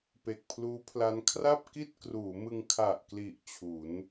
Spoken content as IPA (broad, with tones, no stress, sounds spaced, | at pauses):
p e˨˩ k̚ pʰ l uː˦˥ pʰ l a˦˥ n kʰ r a˥˩ p̚ k i˥˩ t̚ k r uː˩˦ m ɯ˧ ŋ kʰ a˨˩ ʔ k l i˨˩ ʔ t͡ɕʰ u˩˦ n